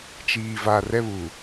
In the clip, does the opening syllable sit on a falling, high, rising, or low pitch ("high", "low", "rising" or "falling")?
low